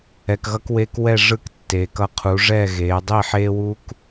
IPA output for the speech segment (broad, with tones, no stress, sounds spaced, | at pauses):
ɛ˨ k ɣ ʌ˧ k w eː˧ k w ɛ˦˨ ʐ ɯ˦˨ k tː eː˨ k ʌ˧ qʰ u˨˦ ʐ ɛ˦˨ ɣ eː˨˦ dˤ i˦˨ ħ eː˦ w uː˦ k